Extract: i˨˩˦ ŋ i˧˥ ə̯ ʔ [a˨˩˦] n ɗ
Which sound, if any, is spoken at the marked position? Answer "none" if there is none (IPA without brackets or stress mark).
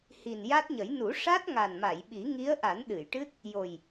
a˨˩˦